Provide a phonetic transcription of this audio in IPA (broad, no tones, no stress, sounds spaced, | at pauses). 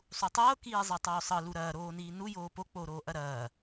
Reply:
sˤ u tˤ ɤː k iː zˤ ɐ tˤ oː sˤ ɤ l u ɾ ɐː ɾ oː n iː n u j oː p o k͡p oː ɾ oː ʔ ɐ ɾ ɐː